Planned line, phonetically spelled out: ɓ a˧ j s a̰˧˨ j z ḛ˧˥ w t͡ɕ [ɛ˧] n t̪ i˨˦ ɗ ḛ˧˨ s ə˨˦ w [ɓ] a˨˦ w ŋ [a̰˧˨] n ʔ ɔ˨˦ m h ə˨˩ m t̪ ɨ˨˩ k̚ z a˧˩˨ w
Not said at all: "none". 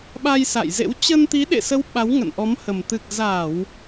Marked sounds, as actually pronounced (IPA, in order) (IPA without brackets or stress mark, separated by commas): ə˧, ɓ, ə̰˧˨